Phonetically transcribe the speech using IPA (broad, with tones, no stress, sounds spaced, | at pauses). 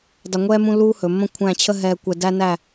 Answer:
dˤ ɘ˧ ŋʷ ɛː˥ m ũ˥ lː uː˥ h ɵ˩˧ mː ə̃˥˧ kʷʰ æ̃˥˧ t͡ɕʰ ə˥ ɦ ɛː˧ kʷ ɛ˧ d æ˥ n æ˥˧